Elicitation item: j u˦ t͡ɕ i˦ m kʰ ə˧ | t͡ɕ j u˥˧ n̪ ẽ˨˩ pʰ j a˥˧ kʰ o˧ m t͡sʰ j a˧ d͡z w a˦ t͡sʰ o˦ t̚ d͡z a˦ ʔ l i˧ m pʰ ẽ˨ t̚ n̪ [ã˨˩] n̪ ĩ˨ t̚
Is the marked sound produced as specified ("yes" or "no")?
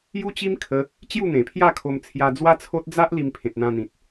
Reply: no